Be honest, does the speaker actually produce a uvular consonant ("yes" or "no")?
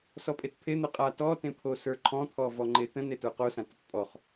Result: yes